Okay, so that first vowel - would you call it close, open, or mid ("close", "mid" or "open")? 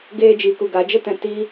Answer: mid